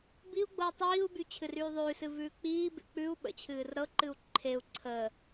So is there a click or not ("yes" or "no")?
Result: yes